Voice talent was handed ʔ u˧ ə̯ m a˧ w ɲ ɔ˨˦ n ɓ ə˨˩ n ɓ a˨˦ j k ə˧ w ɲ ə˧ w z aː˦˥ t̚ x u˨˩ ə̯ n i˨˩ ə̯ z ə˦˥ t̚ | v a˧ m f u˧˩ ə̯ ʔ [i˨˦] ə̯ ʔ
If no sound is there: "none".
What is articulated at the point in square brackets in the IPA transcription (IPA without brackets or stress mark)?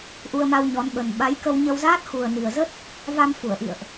ḭ˧˨